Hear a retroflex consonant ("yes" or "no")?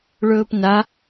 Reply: yes